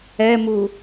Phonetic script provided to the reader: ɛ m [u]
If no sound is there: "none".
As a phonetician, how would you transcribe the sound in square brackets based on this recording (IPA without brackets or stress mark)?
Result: u